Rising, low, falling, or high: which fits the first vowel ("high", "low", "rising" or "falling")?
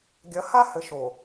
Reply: rising